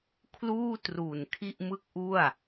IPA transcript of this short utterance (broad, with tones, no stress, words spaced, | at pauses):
kʰluː˥˩tru˨˩n kʰi˥˩ʔmɯ˥˩k̚ʔu˥˩a̯